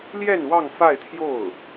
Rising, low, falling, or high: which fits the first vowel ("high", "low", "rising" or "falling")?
falling